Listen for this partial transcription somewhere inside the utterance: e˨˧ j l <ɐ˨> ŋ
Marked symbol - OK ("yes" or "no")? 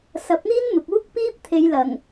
no